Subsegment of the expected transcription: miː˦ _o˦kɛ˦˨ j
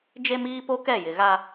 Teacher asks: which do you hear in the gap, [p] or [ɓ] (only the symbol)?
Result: p